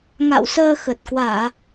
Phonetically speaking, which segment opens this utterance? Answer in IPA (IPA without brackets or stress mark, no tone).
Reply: ŋ